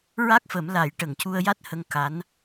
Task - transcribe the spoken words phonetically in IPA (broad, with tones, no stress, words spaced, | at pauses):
ɹa˦˥k̚fə˨˩˦m la˨˩˦j ʈə˨˩˨ŋcu˧ə̯ja˦˥t̚ hə˧ŋ ka˧˥n